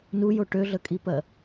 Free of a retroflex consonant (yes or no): no